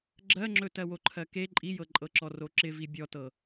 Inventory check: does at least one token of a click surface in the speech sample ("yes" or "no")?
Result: yes